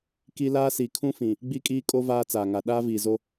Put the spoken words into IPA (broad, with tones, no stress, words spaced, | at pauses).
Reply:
ki˦ laː˦si˨ kʰũ˦fĩ˨ | ɡ͡bi˦kʼiː˦kʼo˦ vaː˦t͡saː˨ŋa˨ ɗaː˦viː˨zo˦